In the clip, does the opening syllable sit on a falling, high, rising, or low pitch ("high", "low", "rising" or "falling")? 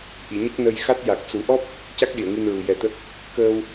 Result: low